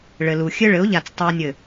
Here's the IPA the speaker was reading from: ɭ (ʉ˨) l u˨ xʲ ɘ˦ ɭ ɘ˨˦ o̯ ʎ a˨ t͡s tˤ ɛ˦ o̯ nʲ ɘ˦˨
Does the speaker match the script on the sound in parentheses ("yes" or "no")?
no